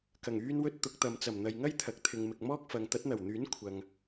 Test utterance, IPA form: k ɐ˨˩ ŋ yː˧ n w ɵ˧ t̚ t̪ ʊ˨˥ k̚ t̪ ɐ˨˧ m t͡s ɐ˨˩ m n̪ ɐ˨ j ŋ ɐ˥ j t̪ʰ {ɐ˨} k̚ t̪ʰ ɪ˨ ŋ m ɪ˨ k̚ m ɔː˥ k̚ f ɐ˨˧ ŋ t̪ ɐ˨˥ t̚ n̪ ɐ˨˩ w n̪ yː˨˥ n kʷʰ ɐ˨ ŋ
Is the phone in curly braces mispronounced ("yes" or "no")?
no